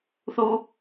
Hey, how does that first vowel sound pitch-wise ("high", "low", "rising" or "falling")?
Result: high